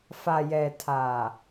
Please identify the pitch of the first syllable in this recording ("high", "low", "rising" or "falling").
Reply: low